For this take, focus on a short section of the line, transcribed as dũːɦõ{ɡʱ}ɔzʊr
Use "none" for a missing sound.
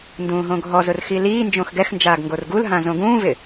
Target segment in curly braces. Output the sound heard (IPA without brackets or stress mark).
ɡʱ